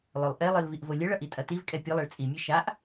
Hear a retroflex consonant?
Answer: yes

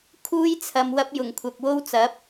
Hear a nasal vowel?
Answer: no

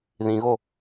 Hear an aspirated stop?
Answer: no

